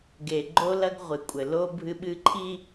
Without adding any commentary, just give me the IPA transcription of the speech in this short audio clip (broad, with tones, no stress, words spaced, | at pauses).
ɡe˨ɡ͡ǃo˦ lɐ˦ɡʁʷɨ˨kʷʼɘ˨ lo˦ bʱɨ˦ɓɨ˦ǃʰi˦